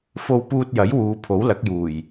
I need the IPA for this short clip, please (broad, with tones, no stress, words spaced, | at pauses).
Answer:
fo˧wpuː˧t̚jɐ˨˥j wuː˨˧pʰo˨˥wlɐ˨˥k̚juː˨˩j